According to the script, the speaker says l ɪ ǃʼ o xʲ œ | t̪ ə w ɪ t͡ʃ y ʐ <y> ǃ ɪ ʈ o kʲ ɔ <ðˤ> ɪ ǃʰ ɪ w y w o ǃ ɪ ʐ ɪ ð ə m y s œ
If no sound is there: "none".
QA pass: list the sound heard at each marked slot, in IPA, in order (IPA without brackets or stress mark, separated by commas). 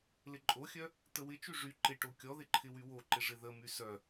y, ð